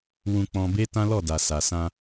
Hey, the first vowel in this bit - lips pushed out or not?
yes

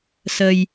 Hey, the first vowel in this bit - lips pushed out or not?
no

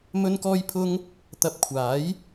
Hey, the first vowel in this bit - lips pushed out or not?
yes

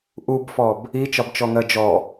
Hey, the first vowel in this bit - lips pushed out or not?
yes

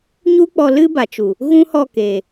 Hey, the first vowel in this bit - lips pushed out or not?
yes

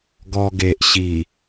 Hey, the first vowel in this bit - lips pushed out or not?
yes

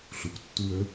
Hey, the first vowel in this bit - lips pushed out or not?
yes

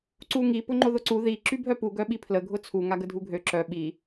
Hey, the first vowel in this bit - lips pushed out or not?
yes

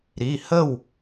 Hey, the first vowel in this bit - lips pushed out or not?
no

